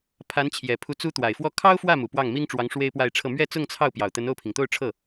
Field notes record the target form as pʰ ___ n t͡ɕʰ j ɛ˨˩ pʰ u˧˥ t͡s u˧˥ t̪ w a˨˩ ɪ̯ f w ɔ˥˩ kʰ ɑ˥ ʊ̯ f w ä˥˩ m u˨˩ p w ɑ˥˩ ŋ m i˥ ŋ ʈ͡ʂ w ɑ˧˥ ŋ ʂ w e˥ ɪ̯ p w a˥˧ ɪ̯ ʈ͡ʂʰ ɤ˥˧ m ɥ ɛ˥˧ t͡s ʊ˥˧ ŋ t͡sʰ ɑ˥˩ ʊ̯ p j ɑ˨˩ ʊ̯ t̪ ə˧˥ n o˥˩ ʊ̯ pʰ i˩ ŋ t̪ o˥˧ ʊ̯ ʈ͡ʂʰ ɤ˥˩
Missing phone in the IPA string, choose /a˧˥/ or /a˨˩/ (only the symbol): a˧˥